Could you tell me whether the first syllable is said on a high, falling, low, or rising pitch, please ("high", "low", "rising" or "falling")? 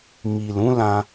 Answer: low